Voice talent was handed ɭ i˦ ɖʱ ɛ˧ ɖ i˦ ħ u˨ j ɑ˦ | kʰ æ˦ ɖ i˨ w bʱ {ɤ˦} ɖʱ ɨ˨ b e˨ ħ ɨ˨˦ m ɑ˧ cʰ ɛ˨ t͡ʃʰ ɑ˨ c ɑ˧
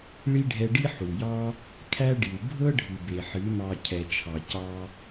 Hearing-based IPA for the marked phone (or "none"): ɤ˦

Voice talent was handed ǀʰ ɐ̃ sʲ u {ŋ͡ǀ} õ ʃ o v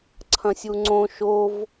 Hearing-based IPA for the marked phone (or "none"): ŋ͡ǀ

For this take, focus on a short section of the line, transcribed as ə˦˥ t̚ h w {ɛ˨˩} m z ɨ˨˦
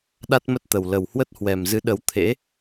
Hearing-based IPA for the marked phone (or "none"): ɛ˨˩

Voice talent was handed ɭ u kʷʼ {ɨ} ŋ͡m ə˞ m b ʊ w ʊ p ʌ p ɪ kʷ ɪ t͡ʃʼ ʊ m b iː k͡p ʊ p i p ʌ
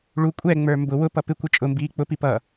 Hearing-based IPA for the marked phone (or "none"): ɛ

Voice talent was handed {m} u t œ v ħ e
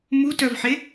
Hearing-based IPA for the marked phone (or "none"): m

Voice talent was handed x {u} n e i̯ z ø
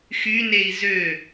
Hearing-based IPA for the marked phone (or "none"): y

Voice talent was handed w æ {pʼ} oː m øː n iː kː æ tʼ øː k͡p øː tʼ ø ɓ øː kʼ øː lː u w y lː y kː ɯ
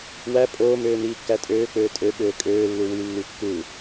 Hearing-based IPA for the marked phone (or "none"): pʼ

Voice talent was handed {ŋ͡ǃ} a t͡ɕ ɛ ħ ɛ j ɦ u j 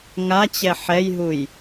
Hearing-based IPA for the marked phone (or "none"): ŋ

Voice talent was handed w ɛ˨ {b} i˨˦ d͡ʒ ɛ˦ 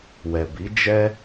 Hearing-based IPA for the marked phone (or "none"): b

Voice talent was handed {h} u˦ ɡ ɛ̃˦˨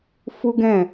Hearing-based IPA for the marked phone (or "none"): f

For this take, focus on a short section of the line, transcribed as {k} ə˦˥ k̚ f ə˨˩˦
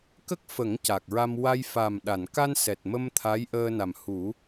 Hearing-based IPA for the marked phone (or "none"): k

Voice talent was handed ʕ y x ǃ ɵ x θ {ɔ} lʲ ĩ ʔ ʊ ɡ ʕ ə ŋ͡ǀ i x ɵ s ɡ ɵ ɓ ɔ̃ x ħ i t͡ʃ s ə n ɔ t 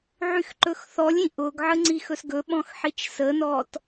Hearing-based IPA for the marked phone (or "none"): ɔ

